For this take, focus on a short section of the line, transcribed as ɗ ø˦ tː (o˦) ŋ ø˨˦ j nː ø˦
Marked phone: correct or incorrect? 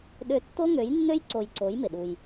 correct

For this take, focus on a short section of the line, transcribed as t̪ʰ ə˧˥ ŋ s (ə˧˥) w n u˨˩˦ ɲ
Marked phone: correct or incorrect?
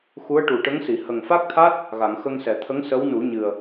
correct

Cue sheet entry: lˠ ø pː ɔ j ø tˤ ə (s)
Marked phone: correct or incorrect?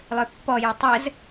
incorrect: z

